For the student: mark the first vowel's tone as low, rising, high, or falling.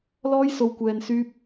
high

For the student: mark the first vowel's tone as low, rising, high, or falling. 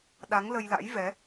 rising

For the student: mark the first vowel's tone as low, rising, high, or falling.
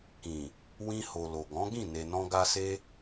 low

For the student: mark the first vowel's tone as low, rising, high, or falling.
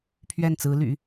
falling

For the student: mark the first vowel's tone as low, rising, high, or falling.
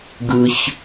high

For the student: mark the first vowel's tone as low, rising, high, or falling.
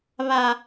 low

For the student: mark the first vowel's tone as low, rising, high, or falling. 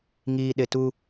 low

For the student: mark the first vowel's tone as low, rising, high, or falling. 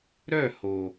falling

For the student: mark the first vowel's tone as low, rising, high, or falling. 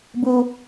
high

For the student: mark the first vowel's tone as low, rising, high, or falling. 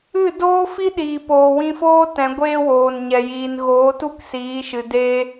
falling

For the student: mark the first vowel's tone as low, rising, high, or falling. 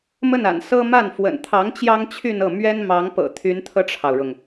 falling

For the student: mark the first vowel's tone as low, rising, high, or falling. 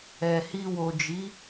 low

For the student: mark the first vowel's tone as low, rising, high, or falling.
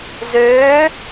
rising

